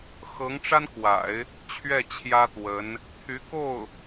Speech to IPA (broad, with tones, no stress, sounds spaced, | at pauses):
x ɤ˧˥ ŋ ʈ͡ʂ a˥ n k w a̰˨˩˦ ɪ̯ | t͡ɕʰ ɥ ɛ˥˩ t͡ɕʰ j ä˥ t̪ w ə˧˥ n | t̪ʰ y˧˥ k o˥˩ ʊ̯